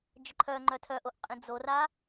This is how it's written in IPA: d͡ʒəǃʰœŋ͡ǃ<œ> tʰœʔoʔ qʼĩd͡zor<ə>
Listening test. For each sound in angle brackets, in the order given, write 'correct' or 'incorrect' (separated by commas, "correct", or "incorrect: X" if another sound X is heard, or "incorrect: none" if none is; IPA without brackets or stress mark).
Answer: correct, incorrect: a